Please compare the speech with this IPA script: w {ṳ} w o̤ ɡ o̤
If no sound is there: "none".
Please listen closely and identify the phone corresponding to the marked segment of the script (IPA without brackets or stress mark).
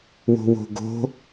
o̤